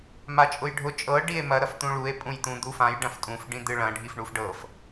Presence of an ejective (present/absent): present